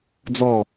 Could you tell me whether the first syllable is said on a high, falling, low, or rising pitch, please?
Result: falling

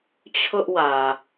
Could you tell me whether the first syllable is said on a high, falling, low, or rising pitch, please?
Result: high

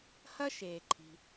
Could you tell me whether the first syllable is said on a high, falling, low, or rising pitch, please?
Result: high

